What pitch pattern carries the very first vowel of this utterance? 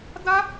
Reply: high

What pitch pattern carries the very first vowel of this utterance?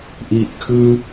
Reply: low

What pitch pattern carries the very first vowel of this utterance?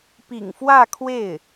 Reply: low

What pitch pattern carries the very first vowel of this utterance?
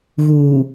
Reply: low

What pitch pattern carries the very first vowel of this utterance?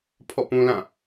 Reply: falling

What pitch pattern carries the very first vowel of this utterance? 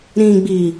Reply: low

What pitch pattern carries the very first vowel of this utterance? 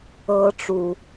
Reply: high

